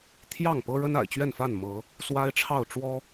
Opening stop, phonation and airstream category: aspirated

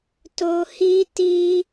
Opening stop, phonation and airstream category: plain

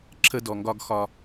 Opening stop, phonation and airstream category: click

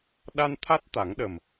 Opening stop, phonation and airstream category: implosive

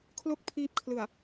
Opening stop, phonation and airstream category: aspirated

